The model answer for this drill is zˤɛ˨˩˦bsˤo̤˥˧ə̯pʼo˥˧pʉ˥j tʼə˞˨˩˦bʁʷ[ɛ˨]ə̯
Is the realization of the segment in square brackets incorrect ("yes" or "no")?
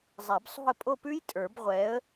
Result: yes